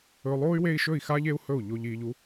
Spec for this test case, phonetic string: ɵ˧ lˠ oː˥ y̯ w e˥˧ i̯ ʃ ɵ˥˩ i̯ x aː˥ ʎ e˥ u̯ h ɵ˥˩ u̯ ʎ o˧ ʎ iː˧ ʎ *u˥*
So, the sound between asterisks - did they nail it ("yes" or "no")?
yes